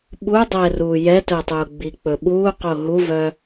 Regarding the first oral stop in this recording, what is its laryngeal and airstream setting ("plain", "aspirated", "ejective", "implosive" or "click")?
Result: implosive